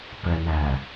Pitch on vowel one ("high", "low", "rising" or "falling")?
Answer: low